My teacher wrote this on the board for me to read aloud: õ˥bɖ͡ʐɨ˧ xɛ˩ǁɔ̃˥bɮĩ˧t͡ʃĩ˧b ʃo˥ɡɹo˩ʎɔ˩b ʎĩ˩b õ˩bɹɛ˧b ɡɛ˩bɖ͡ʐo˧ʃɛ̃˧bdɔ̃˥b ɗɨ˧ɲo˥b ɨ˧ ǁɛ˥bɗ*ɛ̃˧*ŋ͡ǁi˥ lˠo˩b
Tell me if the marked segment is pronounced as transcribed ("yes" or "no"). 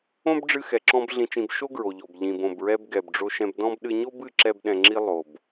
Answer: yes